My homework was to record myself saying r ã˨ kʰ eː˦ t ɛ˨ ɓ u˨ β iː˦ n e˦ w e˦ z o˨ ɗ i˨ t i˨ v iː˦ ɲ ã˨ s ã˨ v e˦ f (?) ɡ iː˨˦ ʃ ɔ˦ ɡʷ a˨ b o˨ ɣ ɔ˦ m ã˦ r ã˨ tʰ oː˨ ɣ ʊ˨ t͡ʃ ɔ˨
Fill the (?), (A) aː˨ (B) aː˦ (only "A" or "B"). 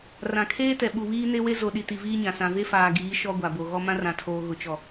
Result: A